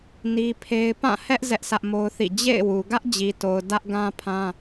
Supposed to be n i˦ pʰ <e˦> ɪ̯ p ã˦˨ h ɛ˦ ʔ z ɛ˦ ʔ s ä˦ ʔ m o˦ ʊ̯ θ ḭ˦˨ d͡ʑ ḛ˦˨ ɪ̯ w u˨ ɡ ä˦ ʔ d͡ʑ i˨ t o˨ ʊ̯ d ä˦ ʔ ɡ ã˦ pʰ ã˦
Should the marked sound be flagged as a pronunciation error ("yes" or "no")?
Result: no